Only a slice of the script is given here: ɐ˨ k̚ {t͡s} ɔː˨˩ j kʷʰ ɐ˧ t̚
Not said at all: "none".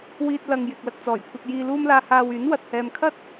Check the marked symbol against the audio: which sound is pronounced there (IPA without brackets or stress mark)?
t͡s